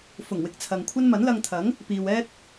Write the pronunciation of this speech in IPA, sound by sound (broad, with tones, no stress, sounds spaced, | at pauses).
f ʊ˨˩ ŋ w ɪ˨ k̚ t͡sʰ ɐ˨ ŋ kʷʰ ɐ˥ n m ɐ˨˥ n l ɐ˧ ŋ t̪ʰ ɐ˨˥ ŋ | p iː˨ w ɛː˥ t̚